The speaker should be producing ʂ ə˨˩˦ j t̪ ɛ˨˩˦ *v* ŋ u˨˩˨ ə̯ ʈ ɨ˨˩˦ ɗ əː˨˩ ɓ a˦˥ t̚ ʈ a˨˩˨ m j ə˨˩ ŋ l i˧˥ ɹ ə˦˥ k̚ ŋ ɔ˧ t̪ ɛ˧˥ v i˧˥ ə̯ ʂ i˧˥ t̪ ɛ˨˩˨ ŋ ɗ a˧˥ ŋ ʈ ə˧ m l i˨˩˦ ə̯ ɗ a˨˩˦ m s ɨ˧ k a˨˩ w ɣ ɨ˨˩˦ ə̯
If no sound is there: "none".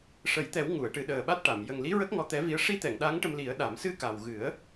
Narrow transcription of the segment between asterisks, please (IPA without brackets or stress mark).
w